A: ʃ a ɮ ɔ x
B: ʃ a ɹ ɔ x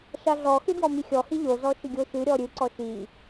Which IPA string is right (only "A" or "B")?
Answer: A